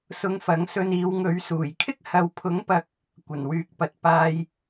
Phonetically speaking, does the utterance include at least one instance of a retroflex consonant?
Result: no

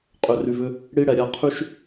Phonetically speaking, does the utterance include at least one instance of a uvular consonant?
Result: yes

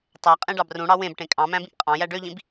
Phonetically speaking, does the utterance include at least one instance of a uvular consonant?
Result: yes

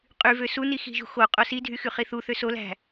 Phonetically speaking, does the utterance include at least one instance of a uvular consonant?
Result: yes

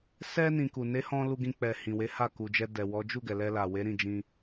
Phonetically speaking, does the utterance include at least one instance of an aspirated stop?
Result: no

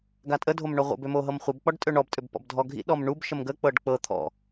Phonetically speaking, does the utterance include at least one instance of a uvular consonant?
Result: yes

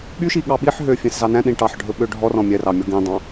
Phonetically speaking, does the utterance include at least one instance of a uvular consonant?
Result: no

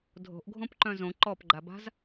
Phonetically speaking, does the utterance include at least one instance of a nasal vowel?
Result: yes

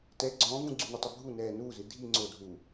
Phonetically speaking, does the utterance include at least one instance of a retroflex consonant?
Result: no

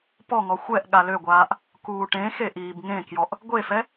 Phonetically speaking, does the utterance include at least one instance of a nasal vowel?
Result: yes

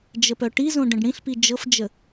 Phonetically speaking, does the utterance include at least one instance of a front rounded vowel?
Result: yes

